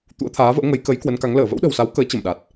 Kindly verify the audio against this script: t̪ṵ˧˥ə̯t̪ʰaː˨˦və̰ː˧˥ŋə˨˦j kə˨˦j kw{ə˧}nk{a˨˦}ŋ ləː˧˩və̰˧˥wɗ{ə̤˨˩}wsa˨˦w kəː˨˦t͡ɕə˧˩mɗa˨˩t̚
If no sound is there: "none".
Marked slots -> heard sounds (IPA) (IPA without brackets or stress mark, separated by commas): ə˨˦, a˨˦, ə̤˨˩